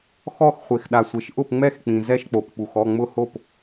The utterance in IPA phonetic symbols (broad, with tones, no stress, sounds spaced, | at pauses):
x ɔ˥˨ x χʷ e˨ x ɗ a˨ sʷ e˨ ʃ ʔ ʊ˥˨ p ŋ͡m ɛ˥˨ x k͡p ĩ˨ z ɛ˥˨ ʃ k͡p o˨ p k͡p u˨ x ɔ˥˨ ŋ͡m ʊ˥˨ h o˥˨ p